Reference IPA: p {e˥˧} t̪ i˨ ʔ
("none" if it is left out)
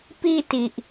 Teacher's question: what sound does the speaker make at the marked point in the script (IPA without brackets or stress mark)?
i˥˧